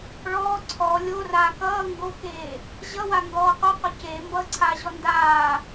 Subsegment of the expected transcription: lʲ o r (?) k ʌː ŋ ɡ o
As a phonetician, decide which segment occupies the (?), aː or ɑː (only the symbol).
aː